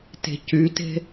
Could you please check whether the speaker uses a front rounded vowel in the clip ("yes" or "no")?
yes